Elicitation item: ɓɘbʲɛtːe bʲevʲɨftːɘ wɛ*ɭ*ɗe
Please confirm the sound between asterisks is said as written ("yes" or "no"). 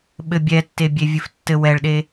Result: yes